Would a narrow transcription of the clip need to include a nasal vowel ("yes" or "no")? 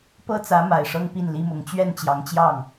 no